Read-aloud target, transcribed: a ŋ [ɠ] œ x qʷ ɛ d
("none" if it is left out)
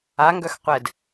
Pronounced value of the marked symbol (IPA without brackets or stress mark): ɡ